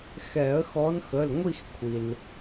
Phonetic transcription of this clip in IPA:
xɛ˨˩˦ə̯xɔ˨˦nxə˩˧˩lŋʷi˦˨x kʷʰi˩l

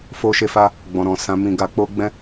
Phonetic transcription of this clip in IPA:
fo˧ʃe˧fa˧ | ɡ͡bɔ̃˨ɾɔ̃˨ sã˨˦mĩ˧ɡa˧ k͡po˧ ɡ͡bɛ̃˦

